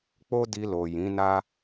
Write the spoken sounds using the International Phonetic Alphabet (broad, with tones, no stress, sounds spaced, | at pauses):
k͡p o˦ d i˧ l o˨ j ĩ˨˦ n a˦